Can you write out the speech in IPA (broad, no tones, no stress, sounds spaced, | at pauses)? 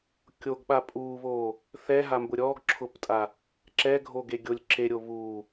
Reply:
kʲ o ɡ ɓ a pʼ u β o | θ ɛ ɦ a m b ʊ ɾʲ ɔ ɡ ǁʰ ʊ p tʼ a | ǁ ɛ ɡʱ o ɡ e ɡʲ o lʲ ǁ e ɾʲ o β u